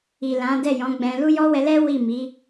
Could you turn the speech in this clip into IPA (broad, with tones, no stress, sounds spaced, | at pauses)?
i˨ l ã˨˦ d ɛ˦˨ j ɔ̃˨˦ ɡ͡b ɛ̃˧ l u˦ j ɔ˦ w ɛ˧ l ɛ˦ w i˦˨ m i˨˦